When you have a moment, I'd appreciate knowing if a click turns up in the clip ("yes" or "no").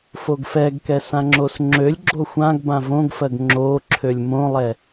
yes